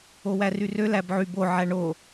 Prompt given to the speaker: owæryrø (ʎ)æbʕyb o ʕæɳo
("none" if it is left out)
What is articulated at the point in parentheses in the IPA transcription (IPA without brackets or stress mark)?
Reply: l